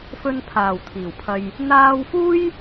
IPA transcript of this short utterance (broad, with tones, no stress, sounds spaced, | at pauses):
f ɵ˧ n pʰ aː˨˩ w t̪ʰ iː˨˩ w pʰ ɐ˧ j | n̪ aː˧ w f uː˥ j